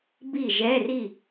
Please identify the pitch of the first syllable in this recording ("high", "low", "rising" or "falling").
falling